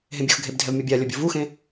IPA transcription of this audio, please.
ɦ ẽ bʲ o x ɡʱ e b dʱ ɛ v mʲ ʌ bʲ a lʲ ʌ bʲ o v u x ẽ

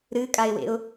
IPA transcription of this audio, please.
ɾ ɨ kʼ a ɪ̯ w ḛ ʊ̯

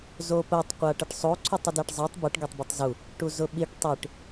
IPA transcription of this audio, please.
z o p ə tˤ qʷ a ʈ ə ʈ sˤ o ǀʰ o tˤ ə d ɛ ʈ zˤ ɛ tˤ b ə ʈ ɡ ɛ tˤ b u tˤ z u | ʈ u z ʊ ɓ i ʈ tˤ i ʈ

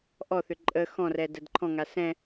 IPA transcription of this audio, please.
ʔ ɔ θ ʏ ǃʼ ə x ɔ̃ r ɛ d ə d ǃʰ ɔ̃ ŋ a s ɛ̃

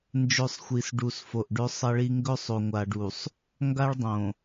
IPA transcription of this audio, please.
n d͡ʒ ɵ˦˨ sˤ xʷ i˨ s ɖ u˨ s f o˨ ʔ ɖ ɵ˦ sˤ ɐ˦ ɭ i˦ ŋ ɡ ɵ˦ sˤ o˨ ŋʷ a˨ ɖ u˨ sˤ | ŋ ɡ a˦ ɭ dˤ õ˨

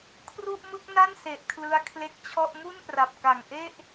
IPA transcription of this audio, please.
kʰ r u˥˩ ʔ m ɯ˥˩ k̚ n a˥˩ n s e˨˩ ʔ kʰ l ɯ˦˥ a̯ kʰ l e˦˥ k̚ t͡ɕʰ ɔ˥˩ ʔ m u˥˩ n p r a˨˩ p̚ k a˨˩ ŋ ʔ e˥˩ ʔ

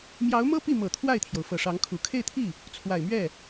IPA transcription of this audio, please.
m j ɑ˧˥ ʊ̯ m ɤ˥ p i˥˩ m ɤ˨˩ t̪ʰ w a˥˩ ɪ̯ t̪ʰ j o˩ ʊ̯ f ɤ˨˩ ʂ ɑ˧˥ ŋ kʰ u˨˩ kʰ e˥˧ ɪ̯ t̪ʰ i˥˩ | t͡sʰ w a˨˩ ɪ̯ m ɥ ɛ˥˩

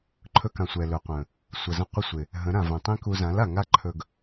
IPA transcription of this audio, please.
ǃʰ ɵ˧ k ã˨ sʷ ɛ˨ l ɵ˨ qʷ ə̃˨ | sʷ ə˨ z ə̃˧ qʷ ɪ˧ sʷ ɪ˨ | ɦ ə̃˨˦ ɾ ã˨ v ɛ̃˨ tˤ ĩ˦ k u˧ z ã˨˦ l a˨ ŋ a˦ ǃʰ ɵ˧ ɡ

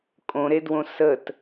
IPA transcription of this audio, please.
kʼ õ ɾ e d w õ s ə t

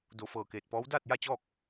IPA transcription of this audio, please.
d o˧˩ f ɤː˧˩ k eː˧˩ t̚ p ɔː˧˥ w d aː˥˨ t̚ j a˥˨ t͡ɕ ɔː˥˨ k̚

